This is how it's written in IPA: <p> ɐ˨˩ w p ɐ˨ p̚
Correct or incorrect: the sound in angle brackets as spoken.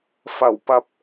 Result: incorrect: f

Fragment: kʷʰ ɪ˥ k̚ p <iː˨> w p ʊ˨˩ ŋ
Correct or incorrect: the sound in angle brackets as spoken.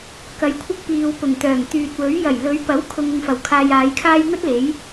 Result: correct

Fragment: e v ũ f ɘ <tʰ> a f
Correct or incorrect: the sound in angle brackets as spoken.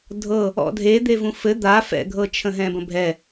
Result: incorrect: d̪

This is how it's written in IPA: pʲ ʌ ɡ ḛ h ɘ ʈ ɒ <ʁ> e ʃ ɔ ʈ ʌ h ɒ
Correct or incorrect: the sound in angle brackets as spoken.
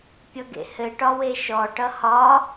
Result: incorrect: w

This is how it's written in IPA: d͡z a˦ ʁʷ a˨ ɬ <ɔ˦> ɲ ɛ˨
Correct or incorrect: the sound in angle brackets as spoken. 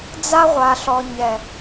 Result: incorrect: ɔ˨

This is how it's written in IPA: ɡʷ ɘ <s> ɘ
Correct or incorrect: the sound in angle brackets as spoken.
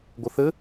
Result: incorrect: θ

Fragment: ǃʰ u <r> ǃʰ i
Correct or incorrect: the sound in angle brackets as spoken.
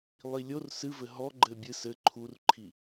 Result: correct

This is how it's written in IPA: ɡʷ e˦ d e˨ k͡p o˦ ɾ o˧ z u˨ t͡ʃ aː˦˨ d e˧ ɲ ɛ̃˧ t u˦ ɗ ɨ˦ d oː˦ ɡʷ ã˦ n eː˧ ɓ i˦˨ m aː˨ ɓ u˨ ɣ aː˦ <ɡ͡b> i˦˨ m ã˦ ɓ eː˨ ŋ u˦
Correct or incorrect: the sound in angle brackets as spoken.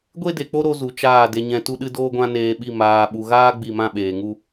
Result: correct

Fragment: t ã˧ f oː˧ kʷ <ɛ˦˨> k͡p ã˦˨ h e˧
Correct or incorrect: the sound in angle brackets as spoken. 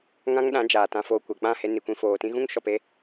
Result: incorrect: ɛ˨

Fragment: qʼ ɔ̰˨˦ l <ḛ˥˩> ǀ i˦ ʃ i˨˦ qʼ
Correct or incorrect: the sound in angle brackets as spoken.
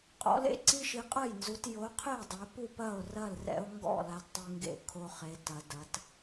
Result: incorrect: ḛ˦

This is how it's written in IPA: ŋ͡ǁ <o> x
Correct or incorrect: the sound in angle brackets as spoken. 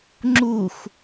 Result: incorrect: u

